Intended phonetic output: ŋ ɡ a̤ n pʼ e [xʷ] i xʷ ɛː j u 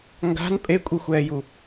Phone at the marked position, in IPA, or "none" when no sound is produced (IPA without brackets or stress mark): kʷʼ